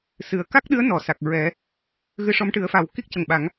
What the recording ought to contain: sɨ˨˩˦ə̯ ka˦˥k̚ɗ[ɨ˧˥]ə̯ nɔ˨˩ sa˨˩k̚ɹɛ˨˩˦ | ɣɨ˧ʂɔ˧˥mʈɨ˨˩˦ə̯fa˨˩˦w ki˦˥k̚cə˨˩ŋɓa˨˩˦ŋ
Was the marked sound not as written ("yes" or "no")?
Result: no